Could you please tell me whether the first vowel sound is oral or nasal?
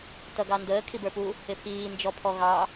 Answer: oral